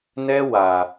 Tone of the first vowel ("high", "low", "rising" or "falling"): high